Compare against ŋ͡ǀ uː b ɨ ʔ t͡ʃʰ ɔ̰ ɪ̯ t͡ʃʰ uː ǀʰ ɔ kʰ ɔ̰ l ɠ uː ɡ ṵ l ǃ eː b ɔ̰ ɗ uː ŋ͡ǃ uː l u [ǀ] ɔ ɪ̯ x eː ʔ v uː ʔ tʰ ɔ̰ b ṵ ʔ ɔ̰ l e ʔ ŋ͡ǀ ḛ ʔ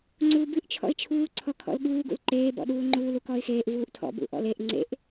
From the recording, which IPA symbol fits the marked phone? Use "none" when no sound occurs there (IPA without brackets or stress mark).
k